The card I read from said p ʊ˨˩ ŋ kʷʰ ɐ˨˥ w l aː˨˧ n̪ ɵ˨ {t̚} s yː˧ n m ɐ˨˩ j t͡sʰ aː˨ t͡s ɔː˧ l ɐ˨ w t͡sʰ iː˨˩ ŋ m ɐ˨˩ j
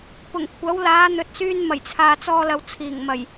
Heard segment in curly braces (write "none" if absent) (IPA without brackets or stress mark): t̚